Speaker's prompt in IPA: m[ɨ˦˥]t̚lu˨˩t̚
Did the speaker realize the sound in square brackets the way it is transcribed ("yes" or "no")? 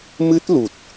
yes